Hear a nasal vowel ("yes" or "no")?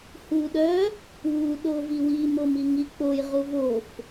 no